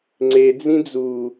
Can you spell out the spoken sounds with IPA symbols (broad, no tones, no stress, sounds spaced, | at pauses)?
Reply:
ŋ͡ǀ e d͡z ĩ d͡z u